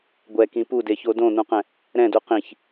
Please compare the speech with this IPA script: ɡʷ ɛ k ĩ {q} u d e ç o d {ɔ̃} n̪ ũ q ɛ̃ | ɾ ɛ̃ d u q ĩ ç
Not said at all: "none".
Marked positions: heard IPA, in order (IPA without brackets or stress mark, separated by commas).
p, õ